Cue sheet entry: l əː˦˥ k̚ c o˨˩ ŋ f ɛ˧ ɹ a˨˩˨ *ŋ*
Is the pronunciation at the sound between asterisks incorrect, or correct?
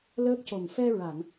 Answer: correct